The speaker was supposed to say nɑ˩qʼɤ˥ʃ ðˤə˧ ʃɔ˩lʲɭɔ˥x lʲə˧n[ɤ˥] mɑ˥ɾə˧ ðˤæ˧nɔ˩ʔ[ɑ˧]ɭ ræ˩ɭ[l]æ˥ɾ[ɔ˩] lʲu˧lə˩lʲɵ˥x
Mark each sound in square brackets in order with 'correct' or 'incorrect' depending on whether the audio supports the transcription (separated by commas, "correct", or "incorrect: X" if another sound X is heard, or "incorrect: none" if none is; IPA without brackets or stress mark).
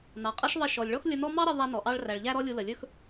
incorrect: ɔ˥, correct, incorrect: ʎ, incorrect: ɔ˥